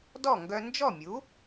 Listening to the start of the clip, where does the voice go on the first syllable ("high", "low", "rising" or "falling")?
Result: falling